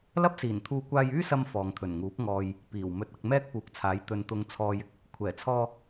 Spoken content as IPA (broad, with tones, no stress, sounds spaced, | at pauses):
l ɐ˥ p̚ s iː˨˩ n t̪ʰ uː˧ kʷ aː˧ j yː˥ s ɐ˧ m f ɔː˨ ŋ t̪ʰ ɵ˨˩ n ŋ uː˨˥ p̚ ŋ ɔː˨ j | p iː˨˩ w m ɵ˧ t̚ ɐ˧ k̚ m ɛː˥ k̚ p uː˨ k̚ t͡sʰ aː˨˥ j t̪ ɵ˨ n t̪ ʊ˨ ŋ t͡sʰ ɔː˨ j ɪ˨˥ k̚ | kʷʰ ɛː˨˩ t͡sʰ ɔː˧